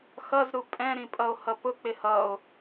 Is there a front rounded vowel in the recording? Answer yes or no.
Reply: no